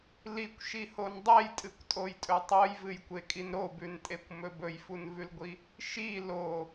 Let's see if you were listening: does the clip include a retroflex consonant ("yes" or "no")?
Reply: no